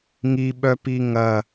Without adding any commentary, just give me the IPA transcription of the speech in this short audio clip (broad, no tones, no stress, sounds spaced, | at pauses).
ŋ i ɓ œ p i ŋ ɐ